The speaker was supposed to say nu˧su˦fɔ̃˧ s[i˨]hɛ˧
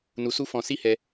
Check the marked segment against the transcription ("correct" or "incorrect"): incorrect